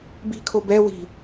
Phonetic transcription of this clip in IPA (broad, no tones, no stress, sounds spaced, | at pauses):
b i̤ kʰ o b ɛ w i̤